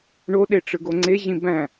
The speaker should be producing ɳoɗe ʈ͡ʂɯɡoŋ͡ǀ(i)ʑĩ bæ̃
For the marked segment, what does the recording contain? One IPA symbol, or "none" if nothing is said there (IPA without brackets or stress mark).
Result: e